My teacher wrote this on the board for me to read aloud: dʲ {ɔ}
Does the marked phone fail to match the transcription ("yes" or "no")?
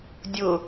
yes